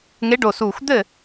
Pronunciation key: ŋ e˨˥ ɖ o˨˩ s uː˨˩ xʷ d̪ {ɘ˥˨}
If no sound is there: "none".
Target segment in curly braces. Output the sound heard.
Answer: ɘ˥˨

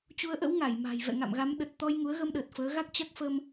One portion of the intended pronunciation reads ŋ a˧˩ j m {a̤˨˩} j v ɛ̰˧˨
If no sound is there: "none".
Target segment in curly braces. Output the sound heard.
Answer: a̤˨˩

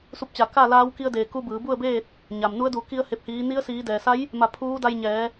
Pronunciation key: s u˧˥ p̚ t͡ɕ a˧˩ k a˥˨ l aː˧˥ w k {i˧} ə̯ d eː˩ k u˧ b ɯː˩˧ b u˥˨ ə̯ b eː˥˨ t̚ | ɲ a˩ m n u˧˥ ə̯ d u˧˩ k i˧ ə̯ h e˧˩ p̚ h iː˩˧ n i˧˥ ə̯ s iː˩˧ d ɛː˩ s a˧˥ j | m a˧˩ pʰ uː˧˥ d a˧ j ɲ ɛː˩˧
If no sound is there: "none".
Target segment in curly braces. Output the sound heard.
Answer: i˧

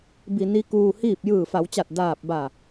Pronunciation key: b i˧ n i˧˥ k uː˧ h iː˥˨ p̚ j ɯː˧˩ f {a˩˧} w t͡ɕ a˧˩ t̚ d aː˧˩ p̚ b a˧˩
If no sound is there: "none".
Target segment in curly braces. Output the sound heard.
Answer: a˩˧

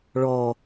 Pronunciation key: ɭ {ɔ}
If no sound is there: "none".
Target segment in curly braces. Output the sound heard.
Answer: ɔ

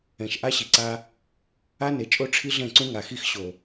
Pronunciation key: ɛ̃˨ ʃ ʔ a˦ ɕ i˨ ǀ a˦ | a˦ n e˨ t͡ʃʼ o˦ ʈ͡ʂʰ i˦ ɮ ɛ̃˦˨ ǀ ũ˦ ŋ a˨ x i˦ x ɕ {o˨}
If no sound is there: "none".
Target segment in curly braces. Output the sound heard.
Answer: o˨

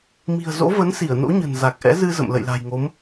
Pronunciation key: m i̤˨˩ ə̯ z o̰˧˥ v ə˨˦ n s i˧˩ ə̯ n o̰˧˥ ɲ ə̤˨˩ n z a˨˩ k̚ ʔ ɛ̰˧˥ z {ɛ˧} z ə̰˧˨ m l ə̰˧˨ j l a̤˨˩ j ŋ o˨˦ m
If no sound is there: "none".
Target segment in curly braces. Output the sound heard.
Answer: ɨ˧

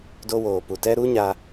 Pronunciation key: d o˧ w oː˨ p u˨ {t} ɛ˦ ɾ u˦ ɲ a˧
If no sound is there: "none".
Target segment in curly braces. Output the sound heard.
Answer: t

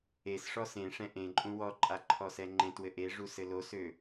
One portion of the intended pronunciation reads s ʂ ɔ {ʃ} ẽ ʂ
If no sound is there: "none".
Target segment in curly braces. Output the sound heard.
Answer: s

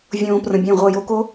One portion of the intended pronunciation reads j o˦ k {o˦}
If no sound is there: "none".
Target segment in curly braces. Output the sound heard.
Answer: o˦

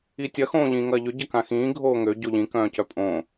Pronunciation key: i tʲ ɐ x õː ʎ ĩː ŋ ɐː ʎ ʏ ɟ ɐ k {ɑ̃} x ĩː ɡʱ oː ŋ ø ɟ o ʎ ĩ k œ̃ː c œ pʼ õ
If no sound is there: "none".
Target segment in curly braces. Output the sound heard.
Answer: ã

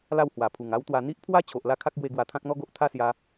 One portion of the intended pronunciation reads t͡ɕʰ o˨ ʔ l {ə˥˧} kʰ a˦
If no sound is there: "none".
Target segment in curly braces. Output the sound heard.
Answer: a˥˧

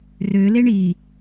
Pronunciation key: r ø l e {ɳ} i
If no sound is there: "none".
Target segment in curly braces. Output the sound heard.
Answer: ɳ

